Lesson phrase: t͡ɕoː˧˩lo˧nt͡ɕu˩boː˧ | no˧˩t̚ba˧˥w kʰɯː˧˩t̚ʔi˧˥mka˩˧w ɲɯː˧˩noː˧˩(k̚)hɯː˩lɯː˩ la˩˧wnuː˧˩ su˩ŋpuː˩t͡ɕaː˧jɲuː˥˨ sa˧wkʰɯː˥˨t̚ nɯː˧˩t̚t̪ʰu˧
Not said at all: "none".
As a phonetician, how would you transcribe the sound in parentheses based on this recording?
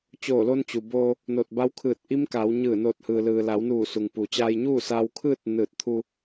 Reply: t̚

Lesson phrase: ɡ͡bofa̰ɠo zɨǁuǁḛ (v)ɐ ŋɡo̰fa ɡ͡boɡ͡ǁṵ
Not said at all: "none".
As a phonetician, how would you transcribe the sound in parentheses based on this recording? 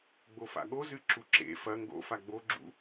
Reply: f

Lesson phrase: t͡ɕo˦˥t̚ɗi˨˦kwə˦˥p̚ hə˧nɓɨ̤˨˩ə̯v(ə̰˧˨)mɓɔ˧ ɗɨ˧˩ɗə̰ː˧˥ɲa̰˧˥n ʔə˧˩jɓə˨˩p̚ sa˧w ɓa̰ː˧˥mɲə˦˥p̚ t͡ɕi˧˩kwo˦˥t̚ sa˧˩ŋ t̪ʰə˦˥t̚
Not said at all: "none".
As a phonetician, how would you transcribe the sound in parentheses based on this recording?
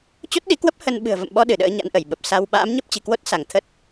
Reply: ə̰˧˨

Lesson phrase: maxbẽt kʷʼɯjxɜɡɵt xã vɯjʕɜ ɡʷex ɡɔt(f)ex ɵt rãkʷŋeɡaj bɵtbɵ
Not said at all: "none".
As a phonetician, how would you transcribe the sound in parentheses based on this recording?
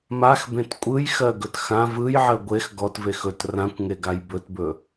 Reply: v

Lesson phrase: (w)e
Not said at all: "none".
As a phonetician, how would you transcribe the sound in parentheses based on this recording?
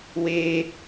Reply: w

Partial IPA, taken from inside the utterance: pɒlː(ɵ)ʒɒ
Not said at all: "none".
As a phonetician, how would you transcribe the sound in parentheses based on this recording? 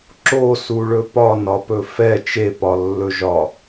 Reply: ɵ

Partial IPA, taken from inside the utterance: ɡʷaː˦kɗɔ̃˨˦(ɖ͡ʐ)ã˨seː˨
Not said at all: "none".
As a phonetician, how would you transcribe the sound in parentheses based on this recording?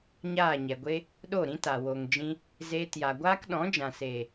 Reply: d͡ʒ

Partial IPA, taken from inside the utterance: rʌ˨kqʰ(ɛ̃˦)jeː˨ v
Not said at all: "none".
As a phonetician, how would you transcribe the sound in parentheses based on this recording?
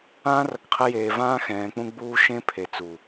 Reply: ɛ˦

